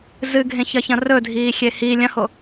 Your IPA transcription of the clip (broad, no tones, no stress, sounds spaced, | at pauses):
z ɨ ɡʱ ẽ ç ɐ ç ɐ̃ r ɵ dʱ iː xʲ e h i lʲ ɐ̃ h o